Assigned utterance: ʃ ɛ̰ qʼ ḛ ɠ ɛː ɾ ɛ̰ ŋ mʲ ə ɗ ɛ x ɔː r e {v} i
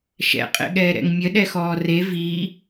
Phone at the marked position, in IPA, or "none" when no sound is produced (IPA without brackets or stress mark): v